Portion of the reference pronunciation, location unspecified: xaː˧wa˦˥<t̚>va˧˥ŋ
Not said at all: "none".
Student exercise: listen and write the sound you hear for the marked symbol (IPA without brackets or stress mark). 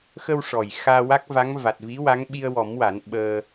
k̚